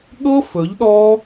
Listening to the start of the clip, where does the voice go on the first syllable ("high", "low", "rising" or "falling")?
high